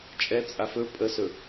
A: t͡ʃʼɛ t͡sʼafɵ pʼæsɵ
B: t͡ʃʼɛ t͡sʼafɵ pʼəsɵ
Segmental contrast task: B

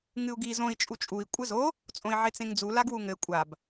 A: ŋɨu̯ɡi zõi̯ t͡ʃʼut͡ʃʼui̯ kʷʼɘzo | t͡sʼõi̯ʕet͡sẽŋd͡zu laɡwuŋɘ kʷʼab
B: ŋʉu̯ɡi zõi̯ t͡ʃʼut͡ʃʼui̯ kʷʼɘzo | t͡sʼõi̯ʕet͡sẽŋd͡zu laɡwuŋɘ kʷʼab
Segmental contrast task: A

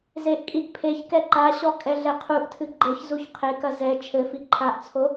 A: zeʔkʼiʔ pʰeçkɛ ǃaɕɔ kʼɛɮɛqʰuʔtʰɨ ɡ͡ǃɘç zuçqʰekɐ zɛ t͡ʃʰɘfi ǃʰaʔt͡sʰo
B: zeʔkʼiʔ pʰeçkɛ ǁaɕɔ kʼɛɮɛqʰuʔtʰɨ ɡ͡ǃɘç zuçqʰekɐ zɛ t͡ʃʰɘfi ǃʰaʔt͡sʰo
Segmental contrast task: A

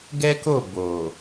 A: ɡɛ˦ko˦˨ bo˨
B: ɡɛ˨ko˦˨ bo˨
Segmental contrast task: A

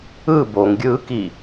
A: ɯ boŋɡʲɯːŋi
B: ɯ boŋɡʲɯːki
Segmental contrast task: B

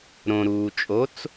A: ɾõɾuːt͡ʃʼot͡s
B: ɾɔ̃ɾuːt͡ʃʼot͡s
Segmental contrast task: A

